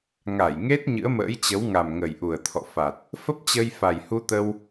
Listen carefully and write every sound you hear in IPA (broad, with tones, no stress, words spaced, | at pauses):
ŋa˧˩jŋe˦˥t̚ ɲɨ̰˧˥ə̯mə̰ː˧˥jt͡ɕə˨˦wŋa˨˩m ŋə˨˩jʔu˨˩ə̯t̪ʰɔ̰˧˨fa˨˩t̚ | fə˦˥p̚t͡ɕə˧j fa˨˩jhu˧t̪ə˧w